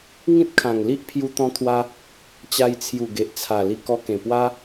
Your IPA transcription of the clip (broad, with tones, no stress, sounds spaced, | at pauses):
ŋ ĩ˦ t̚ kʰ ã˨˩ ŋ l i˦ ʔ pʰ j u˧ t̪ ɔ̃˧ t̪ʰ w a˧ | t͡ɕ a˧ j t͡sʰ j u˨˩ ɡ e˨ ʔ t͡sʰ a˨˩ l i˧ k ɔ˧ k ẽ˨˩ p w a˦